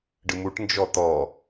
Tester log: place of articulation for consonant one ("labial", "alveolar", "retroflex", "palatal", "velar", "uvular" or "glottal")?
retroflex